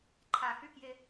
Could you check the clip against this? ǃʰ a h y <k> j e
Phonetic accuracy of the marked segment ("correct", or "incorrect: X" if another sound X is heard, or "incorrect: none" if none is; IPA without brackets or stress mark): correct